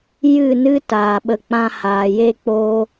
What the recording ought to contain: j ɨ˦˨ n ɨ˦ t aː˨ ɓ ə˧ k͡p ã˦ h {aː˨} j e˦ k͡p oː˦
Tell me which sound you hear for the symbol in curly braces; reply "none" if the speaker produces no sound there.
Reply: aː˨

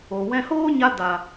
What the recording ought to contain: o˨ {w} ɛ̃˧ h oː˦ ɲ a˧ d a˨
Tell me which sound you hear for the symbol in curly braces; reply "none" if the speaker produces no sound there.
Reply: w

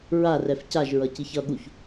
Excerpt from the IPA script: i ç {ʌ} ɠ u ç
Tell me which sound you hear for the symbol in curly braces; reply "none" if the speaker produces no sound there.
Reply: ʌ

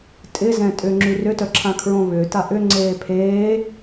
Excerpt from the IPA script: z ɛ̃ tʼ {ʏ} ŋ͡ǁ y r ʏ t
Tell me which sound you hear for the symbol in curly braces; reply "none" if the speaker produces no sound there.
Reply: ʏ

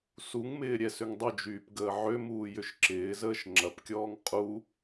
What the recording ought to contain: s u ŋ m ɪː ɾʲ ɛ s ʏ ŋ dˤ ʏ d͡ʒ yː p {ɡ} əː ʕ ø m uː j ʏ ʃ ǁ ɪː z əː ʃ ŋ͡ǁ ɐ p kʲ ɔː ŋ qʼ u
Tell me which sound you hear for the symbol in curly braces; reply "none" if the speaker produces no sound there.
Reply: ɡ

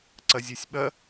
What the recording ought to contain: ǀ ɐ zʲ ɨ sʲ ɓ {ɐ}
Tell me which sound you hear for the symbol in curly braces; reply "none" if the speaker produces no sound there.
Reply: ɐ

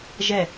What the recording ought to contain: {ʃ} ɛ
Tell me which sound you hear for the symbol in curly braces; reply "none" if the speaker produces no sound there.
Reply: ʒ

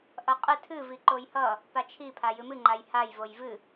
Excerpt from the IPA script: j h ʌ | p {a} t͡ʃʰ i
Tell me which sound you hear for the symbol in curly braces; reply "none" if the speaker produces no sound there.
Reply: a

